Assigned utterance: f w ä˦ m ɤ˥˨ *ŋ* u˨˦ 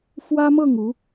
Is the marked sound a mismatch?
no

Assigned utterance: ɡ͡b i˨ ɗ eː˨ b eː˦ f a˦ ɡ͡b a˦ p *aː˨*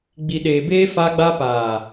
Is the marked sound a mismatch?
no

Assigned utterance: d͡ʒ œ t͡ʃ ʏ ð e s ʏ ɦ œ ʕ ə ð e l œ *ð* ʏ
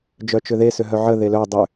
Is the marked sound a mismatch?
yes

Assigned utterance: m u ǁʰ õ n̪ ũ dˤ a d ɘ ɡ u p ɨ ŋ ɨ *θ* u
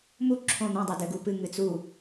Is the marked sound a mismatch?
yes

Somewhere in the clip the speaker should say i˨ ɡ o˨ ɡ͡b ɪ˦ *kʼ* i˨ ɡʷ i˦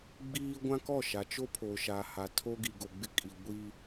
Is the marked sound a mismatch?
no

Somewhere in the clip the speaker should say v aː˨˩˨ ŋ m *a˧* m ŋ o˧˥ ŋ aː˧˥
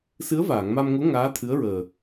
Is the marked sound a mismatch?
no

